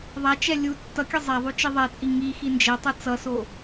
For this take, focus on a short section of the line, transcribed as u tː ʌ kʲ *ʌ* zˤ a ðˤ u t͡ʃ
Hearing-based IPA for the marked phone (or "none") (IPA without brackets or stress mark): ʌ